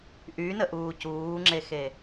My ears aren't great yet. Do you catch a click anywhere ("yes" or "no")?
yes